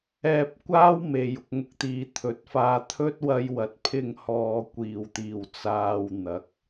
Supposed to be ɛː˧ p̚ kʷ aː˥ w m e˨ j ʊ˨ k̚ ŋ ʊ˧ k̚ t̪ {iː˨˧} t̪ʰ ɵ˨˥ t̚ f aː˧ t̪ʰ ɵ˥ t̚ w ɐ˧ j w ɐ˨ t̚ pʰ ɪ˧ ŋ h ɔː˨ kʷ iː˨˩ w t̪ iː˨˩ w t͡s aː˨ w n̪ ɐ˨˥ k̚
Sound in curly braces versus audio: incorrect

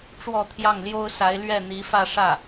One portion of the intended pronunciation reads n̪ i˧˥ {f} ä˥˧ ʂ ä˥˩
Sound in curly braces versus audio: correct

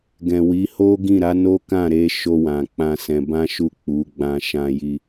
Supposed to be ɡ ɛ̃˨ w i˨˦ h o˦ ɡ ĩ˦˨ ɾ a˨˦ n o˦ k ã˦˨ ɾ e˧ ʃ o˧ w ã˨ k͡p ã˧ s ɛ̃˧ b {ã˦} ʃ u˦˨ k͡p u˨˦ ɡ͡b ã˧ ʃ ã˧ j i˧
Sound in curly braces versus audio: correct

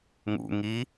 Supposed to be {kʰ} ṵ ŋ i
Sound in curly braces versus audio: incorrect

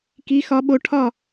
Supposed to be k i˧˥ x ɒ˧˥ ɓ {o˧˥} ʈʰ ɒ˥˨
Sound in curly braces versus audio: correct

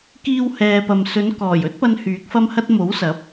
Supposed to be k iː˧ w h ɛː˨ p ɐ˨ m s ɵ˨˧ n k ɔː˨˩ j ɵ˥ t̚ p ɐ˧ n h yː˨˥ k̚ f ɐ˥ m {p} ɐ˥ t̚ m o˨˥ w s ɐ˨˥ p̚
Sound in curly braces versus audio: incorrect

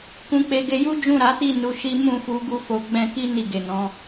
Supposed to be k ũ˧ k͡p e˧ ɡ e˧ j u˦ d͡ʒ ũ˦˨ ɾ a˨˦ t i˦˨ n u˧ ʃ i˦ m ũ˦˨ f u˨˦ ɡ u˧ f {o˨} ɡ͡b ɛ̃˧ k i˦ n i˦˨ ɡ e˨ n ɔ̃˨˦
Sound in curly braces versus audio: correct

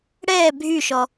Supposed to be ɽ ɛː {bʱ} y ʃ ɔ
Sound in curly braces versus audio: correct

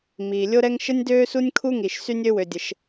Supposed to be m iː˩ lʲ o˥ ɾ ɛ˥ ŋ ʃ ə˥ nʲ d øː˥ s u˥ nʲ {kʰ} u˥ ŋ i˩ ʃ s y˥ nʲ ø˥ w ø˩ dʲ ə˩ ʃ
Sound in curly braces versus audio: correct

